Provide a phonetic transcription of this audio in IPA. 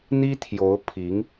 n̪ i˥ t̪ʰ j o˧˥ ʊ̯ pʰ i˧˥ ŋ

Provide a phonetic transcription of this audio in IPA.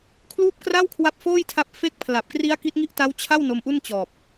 kʰ l uː˥˩ p̚ k r a˥˩ w kʰ w a˦˥ p̚ f oː˥˩ j tʰ a˦˥ p̚ f e˦˥ k̚ pʰ l a˨˩ p̚ k r i˦˥ a̯ k i˦˥ t̚ ŋ i˥˩ ʔ t a˦˥ w t͡ɕʰ a˥˩ w n o˧ m ʔ u˥˩ n t͡ɕ ɔː˨˩ p̚

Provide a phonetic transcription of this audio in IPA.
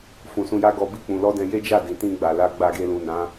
f ũ˨ s ũ˧ j a˦ ɡ ɔ˧ b i˦ k͡p ũ˧ l ɔ˦ d ɛ̃˧ j e˦ d͡ʒ a˦˨ d ĩ˨ t ĩ˧ ɡ͡b a˨ l a˧ ɡ͡b a˧ ɡ e˧ l ũ˨ n ã˨˦

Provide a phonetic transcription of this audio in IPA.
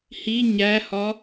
h i ɲ æ h ɒ

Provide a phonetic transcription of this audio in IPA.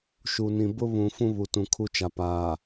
ʃ u˨ n ĩ˨ b ʊ˦ β ũ˨ f ũ˦ β u˨ t ũ˨ kʰ u˦ t͡ʃ a˨ p aː˨

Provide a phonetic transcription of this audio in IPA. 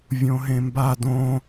vʲ õ ɦ ẽ m b a d õ

